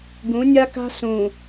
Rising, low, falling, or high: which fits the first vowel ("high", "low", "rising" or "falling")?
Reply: rising